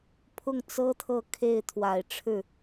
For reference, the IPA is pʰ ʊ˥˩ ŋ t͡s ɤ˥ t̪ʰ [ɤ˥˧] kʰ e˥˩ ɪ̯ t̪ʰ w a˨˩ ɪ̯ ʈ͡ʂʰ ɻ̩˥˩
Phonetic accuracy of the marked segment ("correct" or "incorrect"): correct